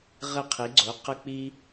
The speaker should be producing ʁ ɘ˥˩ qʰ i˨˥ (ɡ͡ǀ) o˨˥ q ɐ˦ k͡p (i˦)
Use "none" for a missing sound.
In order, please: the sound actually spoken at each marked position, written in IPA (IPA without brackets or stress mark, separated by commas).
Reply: ɡ͡ǀ, i˦